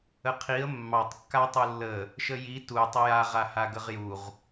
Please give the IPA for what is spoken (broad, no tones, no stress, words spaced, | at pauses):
əqʰiə̯ mːɑtˤ kːatˤulːə | ʃəji tu tˤəjaʁa haɡəʁjuʁ